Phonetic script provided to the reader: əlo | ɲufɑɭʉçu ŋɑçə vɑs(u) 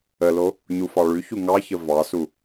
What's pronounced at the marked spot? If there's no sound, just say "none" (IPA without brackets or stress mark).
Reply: u